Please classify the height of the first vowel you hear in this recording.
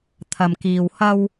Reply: low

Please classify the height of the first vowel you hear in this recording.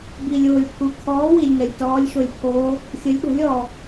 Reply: high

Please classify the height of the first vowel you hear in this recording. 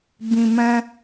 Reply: high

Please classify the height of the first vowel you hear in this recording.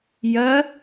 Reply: low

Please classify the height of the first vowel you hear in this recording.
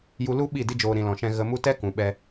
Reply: high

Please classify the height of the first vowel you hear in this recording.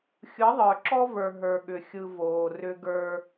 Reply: high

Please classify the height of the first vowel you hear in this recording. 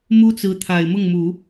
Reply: high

